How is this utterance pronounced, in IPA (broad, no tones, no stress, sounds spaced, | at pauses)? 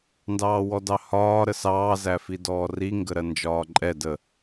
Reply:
n d ɑː w ɔ d ɑ h ɒː ɾ ə s ɑː z æ f i d ɔː r i ŋ ɡ ə ɾ ɜ n d͡ʒ ɒː ǃʼ ɛ d ə